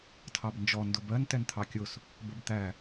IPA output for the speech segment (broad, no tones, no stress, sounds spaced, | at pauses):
tʰ ɑ b n d͡ʒ ɔ n d ʊ b ɜ n t ɛ n t̪ʰ ɑ kʲ ʊ s | b ə b t̪ æ